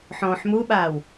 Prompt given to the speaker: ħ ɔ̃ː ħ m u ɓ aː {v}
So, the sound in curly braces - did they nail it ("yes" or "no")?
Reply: no